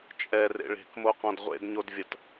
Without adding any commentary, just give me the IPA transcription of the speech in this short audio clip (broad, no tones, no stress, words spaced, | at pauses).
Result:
t͡ʃʼɛrḛ ɭe̤kmoqɔ̃d ʁʷḛdɲodvʲɐt